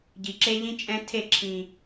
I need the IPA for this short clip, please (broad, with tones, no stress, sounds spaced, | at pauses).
ɟ i˨ ǁ e˦ ʎ ĩ˦ t͡ʃʼ ɛ̃˦ tʰ e˦˨ ǁʰ ĩ˨